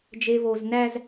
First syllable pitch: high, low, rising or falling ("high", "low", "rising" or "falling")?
low